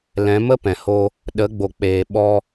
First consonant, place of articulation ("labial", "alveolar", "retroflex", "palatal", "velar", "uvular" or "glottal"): alveolar